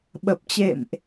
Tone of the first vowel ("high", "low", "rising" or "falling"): low